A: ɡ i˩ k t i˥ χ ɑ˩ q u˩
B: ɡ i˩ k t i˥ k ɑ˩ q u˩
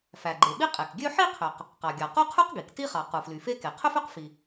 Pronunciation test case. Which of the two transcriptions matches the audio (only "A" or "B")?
A